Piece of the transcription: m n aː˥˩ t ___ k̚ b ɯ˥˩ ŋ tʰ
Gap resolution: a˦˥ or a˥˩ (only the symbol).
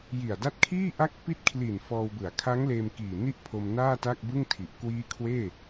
a˥˩